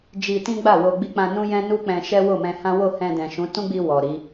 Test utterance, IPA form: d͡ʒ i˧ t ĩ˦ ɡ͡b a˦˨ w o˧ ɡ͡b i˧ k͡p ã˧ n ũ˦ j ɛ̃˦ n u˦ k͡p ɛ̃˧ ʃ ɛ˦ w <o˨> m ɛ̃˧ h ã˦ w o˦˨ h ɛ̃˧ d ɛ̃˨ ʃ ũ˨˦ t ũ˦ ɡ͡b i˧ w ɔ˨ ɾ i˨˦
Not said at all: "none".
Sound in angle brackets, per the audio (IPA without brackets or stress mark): o˦˨